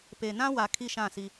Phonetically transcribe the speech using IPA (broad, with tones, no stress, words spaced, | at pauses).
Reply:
pe˨ nã˦wa˨ kʰi˦˨ʃã˦˨si˦